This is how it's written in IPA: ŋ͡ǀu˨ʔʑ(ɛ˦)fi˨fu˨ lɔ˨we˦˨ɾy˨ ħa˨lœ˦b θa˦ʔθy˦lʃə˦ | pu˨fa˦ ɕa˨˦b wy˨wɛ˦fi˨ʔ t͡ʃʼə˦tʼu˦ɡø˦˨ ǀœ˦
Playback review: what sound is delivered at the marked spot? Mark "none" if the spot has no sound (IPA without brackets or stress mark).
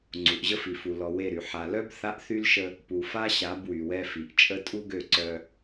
ə˦